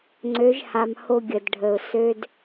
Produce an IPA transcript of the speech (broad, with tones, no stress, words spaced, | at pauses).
ŋ͡ǀø˨˦ʒha˨m ho˦ɡʲə˨dɖʱə˨ʊ̯ sø˦d